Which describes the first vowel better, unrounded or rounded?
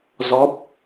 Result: rounded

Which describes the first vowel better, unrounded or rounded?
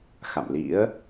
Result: unrounded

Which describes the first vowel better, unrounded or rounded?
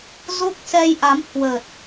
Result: rounded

